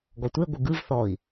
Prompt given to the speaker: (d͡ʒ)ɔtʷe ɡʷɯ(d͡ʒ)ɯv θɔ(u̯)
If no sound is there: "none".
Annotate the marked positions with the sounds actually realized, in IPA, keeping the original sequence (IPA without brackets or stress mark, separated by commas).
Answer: ɡ, ɡ, i̯